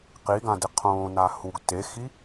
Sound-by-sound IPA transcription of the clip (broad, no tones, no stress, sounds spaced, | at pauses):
q i ɡ ã d e qʰ õː n a h u ɡ t e x i